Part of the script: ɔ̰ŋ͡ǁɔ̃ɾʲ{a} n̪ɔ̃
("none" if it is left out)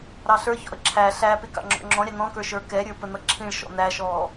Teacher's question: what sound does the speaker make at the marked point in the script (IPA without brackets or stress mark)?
ɑ